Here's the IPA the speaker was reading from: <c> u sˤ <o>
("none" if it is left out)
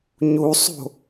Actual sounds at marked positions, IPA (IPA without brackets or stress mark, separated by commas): ɲ, o̤